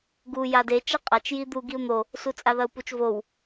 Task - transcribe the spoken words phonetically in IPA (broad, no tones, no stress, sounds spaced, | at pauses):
ɡ u j a d e t͡ʃ ɐ qʼ a t͡ʃ j i d̪ u ɡ i u̯ n̪ o | s u t͡sʼ a ð ɐ u̯ p u t͡ʃ v o w